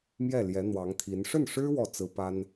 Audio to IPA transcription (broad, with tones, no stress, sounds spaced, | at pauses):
m j ɛ˥˩ l j ɛ˧˥ n̪ w ɑ˧˥ ŋ t̪ʰ i˧˥ n ʂ ə˥˩ n ʂ ɻ̩˥ w ɔ˥˩ t͡s ɹ̩˥ p a˥ n